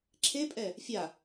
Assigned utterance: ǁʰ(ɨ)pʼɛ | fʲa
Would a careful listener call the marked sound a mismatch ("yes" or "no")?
yes